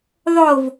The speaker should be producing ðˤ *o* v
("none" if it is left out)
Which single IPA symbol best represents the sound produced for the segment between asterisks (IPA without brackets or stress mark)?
o